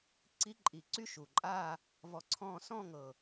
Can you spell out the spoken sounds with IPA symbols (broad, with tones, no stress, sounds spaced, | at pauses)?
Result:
ǀ i˧˥ ǃʼ i˨˩ ǀ y˥˧ ʃ u˨˩ ǃʼ aː˥˧ | v ɔ˧˥ ǀʰ ɔ̃ː˥˧ s ɔ̃˥˧ ŋ ɤ˨˩